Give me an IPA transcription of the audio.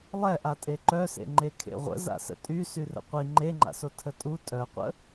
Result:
lˠɛʔa tʼeǃœsḛ ŋ͡ǃekʰḛʁʷə̰ za̰sə̰tʼy syrə̰qʷi ŋ͡ǃeŋ͡ǃa̰so tʰətʼu tʼœqʷə̰

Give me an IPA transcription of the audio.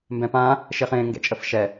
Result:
mbɛ̃pã | ʃɪχẽ ŋɡɛ̰t͡ʃʼəfʃɛ

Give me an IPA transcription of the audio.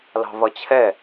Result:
lɑ̤vʌt͡ɕʰɛ

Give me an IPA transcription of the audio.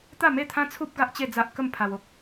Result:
t̪a˥˧me˥˧t̪ʰã˦t͡sʰu˦p̚ ɡa˦ʔt͡ɕe˥˧d͡za˦ʔkə˥˧m pʰa˧wo˨k̚

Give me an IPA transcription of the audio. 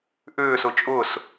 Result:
ʔʏːsʊ t͡ʃʼʊs

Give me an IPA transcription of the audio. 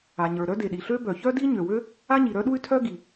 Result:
a˩ɲə˞˩ ɾœ˥de˩ɗi˩ɬø˥ bœ˩ çœ˥di˥ɲø˩wø˥ | a˥ɲi˩ɾœ˥ɗu˥y̯ tʰœ˥ ɡi˩

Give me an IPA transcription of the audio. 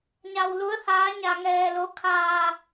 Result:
ɲa˧wlu˧˥ə̯haː˧˥ ɲa˧ŋɛː˧lo˧˥ kʰaː˧

